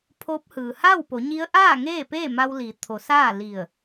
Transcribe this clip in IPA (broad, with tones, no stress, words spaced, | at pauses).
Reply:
pʰo˧˥p̚hɯː˩ ha˥˨wpo˩˧ɲi˧˥ə̯ ʔaː˥˨ ŋeː˥˨peː˥˨ ma˧wli˩˧t̪ʰo˩˧ saː˥˨li˧˩ə̯